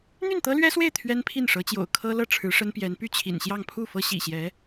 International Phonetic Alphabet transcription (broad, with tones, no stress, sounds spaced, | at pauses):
n̪ y˥˩ n t̪ ɤ˥ l ɥ ɛ˥ s w e˥˩ ɪ̯ t̪ʰ ɥ ɛ˥ n pʰ i˥˩ n ʂ ɤ˧˥ t͡ɕ j o̰˨˩ ʊ̯ kʰ ɤ˥ l ɤ˥˩ ʈ͡ʂʰ ɻ̩˧˥ ʂ ə˥ n p j ɛ˧˥ n p y˥˩ t͡ɕʰ ḭ˨˩ n ɕ j ɑ˥˧ ŋ pʰ u˥˩ f ɤ˥ ɕ ḭ˨˩ ɕ j ɛ˧˥